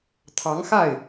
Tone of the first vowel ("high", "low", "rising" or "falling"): rising